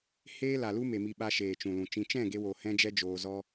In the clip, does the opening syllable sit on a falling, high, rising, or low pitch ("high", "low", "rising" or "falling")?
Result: high